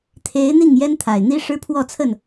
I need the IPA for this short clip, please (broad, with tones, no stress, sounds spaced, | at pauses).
t̪ʰ e˨˦ ɪ̯ n̪ i˥˨ ŋ j ɛ˦ n t̪ʰ a˨˩ ɪ̯ n̪ i˦ ʂ ɻ̩˦ pʰ w ɔ˥˨ t͡sʰ ə˥˨ n